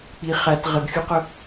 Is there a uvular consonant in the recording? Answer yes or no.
yes